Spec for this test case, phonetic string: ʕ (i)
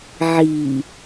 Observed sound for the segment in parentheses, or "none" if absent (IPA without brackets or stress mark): i